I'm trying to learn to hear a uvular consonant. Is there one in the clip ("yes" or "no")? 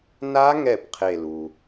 yes